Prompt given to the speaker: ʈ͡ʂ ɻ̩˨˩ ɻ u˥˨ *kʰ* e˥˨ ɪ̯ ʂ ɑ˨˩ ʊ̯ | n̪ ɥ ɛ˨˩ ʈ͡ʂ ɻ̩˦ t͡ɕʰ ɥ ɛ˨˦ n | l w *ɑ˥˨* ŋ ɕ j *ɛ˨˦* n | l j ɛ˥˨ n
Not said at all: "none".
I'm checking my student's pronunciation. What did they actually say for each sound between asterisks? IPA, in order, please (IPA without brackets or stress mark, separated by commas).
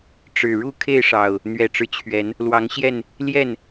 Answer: kʰ, ɑ˨˦, ɛ˥˨